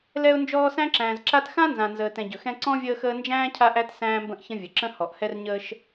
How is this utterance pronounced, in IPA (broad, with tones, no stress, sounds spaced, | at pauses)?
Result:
l ɛ˦ ʊ̯ n d͡ʒ ɔː˦ s æ̃˥ ǁ æ̃ː˨ z ǁ a˥ t x ã˥ n z ã˨ n z əː˨ t ɛ̃˨ ɟ ɵ˩ x ɛ̃˦ ǀ ɔ̃˥ vʲ əː˦ x əː˦ n d͡ʒ æ̃ː˥ cʰ a˦ ʔ æ˦ t s æ̃ː˦ m b ə̃˦ ʔ ç ə̃˦ vʲ ə˩ ǁ ə̃˦ h ɔ˩ ʔ h ɛ˦ r ɲ əː˦ ʃ